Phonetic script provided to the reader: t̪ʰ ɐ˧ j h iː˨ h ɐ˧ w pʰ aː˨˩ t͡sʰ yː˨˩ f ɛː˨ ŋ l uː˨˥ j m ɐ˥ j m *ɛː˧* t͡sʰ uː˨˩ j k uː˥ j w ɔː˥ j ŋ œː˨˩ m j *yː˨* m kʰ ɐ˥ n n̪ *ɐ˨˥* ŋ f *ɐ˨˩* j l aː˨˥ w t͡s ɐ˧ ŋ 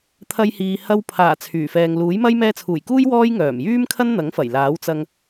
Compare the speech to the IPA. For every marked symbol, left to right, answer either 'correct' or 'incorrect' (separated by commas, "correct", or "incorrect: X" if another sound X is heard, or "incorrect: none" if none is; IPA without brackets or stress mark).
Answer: correct, incorrect: yː˥, correct, correct